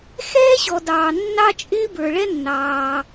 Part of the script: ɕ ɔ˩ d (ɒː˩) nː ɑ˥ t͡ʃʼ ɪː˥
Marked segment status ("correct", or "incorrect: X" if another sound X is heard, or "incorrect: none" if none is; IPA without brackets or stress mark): incorrect: ɑː˩